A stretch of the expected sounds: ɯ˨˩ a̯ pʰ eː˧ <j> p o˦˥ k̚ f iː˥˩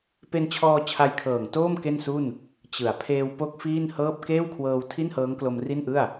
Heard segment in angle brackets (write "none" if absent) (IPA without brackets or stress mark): w